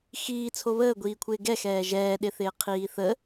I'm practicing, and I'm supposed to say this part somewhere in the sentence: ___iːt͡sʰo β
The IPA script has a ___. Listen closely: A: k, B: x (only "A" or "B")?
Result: B